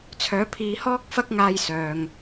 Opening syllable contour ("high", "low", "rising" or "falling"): rising